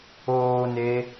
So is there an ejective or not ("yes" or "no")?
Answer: no